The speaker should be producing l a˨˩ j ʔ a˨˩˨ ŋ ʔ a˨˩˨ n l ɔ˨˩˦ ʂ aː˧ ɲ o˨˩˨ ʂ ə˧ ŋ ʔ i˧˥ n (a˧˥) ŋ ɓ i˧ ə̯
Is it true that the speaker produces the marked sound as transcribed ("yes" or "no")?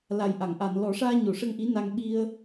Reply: no